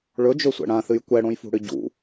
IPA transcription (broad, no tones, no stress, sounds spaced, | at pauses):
ɭ ɵ d͡ʒ ɵ sʷ ɛ̰ ɽ ã θ ɨ j kʷ ɛ ɽ õ j f ṳ ɽ ɨ ɟ ṵ